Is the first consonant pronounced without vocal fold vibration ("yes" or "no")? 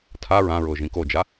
yes